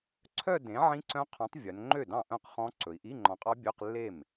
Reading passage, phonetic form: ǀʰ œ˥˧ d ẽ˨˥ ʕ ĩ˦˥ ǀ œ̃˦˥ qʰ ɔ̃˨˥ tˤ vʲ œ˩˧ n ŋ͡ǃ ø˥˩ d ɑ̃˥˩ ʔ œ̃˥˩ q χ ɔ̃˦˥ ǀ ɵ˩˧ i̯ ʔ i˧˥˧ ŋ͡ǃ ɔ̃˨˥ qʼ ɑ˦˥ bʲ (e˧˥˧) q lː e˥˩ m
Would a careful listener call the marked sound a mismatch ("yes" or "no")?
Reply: yes